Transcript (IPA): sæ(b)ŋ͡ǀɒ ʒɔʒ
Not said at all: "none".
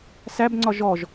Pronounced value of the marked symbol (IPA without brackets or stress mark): b